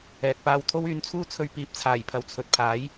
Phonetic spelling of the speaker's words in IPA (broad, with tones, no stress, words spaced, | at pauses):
ɛː˨k̚paː˧w t̪ʰo˥wyː˧nt͡sʰuː˥t͡sʰɵ˧ɥ piː˨˥p̚t͡sʰaː˨˩jpʰɐ˨w t͡sʰɵ˨t̚pʰaː˨˥j